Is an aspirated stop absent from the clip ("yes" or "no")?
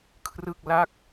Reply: no